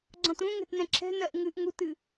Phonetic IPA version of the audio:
ɡ͡ǀɔ̃tũŋɛ̤t nɛ̃ǁʰɛ̤nɜʔ ŋɨʔ ŋutɨ

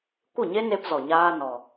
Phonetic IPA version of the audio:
kʷɨ˦˨ɲe˦ne˧pzɔ˨ ɲaː˦ nɔ˧

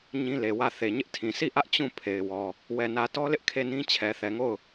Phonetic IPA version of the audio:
ɲĩ˦le˨wä˦˨ θe˨ɲɪ˦ʔtʰĩ˨ si˦˨ʔä˦ʔ t͡ɕũ˦˨ pʰe˨ɪ̯wɔ˨ | wɛ˨nä˨tɔ˦lɪ˦ʔ kʰe˦˨nĩ˦ t͡ɕʰɛ˨θɛ˨ŋo˦˨ʊ̯

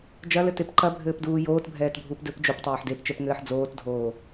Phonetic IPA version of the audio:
d͡ʒɐlɘtep ǃɐbʱɘːpduː joːtbʱɛːtbʱuːp dɘp d͡ʒoptˤoːħ dett͡ʃɛpŋɘːħ d͡zoːtdʱoː

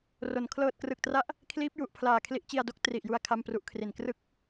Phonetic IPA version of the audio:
ro˨˩n kʰlɤː˨˩t̚krɯ˨˩k̚tra˦˥ʔ | kʰliː˦˥p̚ju˨˩ʔpʰlaː˨˩ kʰli˦˥ʔt͡ɕi˧a̯do˦˥k̚ tri˨˩ʔju˧a̯ kʰa˥˩mpru˦˥ʔkʰri˨˩n krɯ˥˩k̚

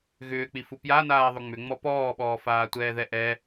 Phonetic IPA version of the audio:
ɣʏːk͡pifu pjanaːðˤʏ ŋ͡mʏŋ͡mɔ pɔːɓɔː faːtʷɛːðɛʔɛ

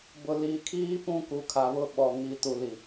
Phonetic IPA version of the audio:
bʊ˨liː˨kʰiː˦ pũ˦ku˨ kʰa˨βʊ˦ɓɔ˨ ŋi˨tu˨li˨

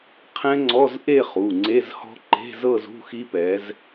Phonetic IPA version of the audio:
qʰɛ̃˦˥ŋ͡ǀɔ˧˥˧zʔe˥˧χu˩˧˩ ŋ͡ǀe˧˥˧zhɔ̤˦˥ ǃe̤˧˥˧zɤ˥˧z ṳ˧˥˧xi˦˥pɛ˨˦z

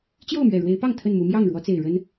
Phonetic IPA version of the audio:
t͡ɕjo˥˨ʊ̯mɥɛ˨˩ɻwe˨˦ɪ̯pɑ˥˨ŋ t̪ʰə˥˨nmu˨˦ mjɑ˥˨ŋɻwɔ˨˦t͡se˨˩ɪ̯ ɻə˦n

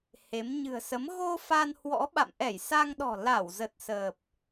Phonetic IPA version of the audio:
he˨˦m ɲɨ̤˨˩ə̯sə˨˦m ɣo˧ fa˧nhwɔ̰˧˥ ɓa̰˧˨mʔɛ˧˩jsa˧ŋɗɔ̤˨˩ la˧˩wzə˨˩t̚səː˨˩p̚

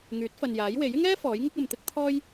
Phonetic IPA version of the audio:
ŋyː˨˥t̚fɐ˨njaː˨˥jwe˨˥j ɪ˥ŋɛː˥ fɔː˨˥jŋɪ˥k̚ɐ˨mt̪ɪ˥k̚ t̪ʰɔː˥j

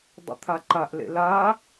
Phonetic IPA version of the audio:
dˤṵt̪ʰaǃaʔlḛ la

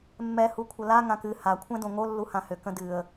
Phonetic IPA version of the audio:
mːɛ hukʷʰəla ŋãkɨ ha kʷʰɛ̃dõŋo lːuhãhʏ kə̃dɨə̯

